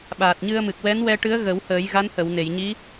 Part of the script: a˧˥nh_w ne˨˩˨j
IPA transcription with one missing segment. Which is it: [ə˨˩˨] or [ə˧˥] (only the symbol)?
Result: ə˨˩˨